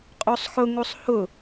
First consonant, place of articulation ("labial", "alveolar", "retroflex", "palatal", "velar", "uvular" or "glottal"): uvular